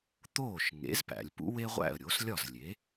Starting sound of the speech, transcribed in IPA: t̪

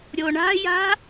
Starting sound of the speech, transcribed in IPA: ɾʲ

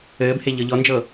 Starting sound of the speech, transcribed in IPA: ɘː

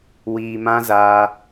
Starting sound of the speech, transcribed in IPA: w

